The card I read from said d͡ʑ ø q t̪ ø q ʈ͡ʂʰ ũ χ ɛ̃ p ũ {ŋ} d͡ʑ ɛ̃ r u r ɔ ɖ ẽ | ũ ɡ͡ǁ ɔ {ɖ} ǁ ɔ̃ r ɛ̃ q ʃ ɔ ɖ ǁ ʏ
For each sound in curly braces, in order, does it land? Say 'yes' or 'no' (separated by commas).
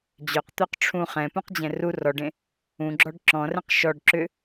no, yes